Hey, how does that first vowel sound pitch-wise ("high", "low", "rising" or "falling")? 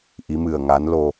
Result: rising